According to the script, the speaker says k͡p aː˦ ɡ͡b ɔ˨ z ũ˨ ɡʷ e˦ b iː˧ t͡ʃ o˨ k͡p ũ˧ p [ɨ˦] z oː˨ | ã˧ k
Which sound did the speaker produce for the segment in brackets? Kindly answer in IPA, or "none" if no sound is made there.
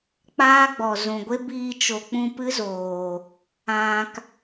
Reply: ɨ˦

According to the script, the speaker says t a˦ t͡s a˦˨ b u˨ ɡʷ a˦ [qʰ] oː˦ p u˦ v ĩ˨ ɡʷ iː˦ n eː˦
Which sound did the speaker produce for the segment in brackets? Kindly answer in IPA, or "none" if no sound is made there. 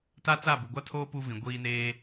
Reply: tʰ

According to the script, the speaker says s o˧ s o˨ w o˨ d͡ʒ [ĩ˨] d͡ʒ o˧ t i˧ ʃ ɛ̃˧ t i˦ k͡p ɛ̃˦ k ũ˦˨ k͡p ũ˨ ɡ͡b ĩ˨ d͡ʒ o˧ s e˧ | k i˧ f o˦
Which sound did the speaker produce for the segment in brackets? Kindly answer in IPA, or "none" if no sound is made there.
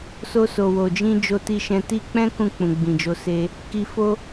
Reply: ĩ˧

